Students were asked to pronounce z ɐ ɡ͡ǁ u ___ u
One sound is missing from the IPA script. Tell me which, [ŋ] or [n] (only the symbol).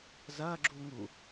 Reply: ŋ